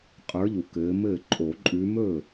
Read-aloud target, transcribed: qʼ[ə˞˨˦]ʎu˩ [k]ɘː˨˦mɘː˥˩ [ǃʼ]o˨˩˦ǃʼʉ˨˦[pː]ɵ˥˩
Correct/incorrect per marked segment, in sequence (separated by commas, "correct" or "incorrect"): correct, correct, correct, incorrect